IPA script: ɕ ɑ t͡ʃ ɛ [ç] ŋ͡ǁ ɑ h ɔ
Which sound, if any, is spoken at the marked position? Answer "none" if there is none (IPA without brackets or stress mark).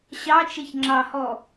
ç